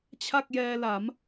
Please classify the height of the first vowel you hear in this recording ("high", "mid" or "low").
low